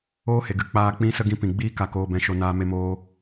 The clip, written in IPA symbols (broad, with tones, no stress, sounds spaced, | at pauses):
oː˦ h e˨ ɡ ɨ˨ k͡p aː˧ k͡p ĩ˦ s ə˦ ɡ ĩ˧ p ĩ˨ ɡ͡b iː˦ k a˧ k oː˧ b ɛ̃˧ ʃ o˧ n aː˦ m e˦ m oː˦